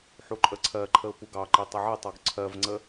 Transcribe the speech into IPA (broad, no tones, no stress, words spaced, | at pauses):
ħuǃʼəǀʰɜǃʰəʊ̯ puɡɑǃi tˤəʕɛtˤɔɡ ǀʰɜvŋ͡ǀə